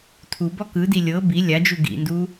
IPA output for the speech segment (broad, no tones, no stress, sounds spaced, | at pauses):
tʰ u b ɔ k ɯ d i lʲ ɤ b i lʲ a d͡ʒ u ɡ ḭ n d u